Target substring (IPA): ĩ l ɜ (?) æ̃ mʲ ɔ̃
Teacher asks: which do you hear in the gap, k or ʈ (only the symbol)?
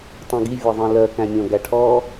k